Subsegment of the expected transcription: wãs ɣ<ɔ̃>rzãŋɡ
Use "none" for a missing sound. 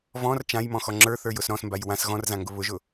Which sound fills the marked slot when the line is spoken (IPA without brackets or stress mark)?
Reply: ɔ̃